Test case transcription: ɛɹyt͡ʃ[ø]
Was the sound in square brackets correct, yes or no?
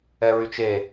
no